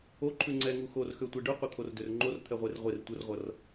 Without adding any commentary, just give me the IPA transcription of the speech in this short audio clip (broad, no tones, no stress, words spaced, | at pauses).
oǃʰʉ ŋ͡ǀɛŋu xorxøtʷe ɖʉqʷʌt̪ʰordør ŋ͡ǃort̪ʰɛʁʷer ʁʷer tʷərʁʷʌr